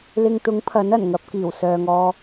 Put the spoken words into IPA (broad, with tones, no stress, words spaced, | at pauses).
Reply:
lɪ˧ŋt̪ʊ˨˥ŋpʰɐ˨˥n ɐ˨˩nŋɐ˨˥p̚kiː˨˩wsœː˨ŋ ɔː˧